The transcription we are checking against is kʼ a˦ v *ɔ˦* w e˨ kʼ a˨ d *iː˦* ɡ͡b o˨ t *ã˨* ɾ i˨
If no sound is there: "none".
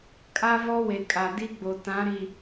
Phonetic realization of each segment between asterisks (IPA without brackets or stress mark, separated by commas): ɔ˦, i˦, ã˨˦